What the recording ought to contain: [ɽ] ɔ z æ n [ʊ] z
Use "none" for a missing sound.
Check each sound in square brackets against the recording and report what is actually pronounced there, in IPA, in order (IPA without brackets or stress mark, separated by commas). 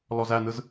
l, ɯ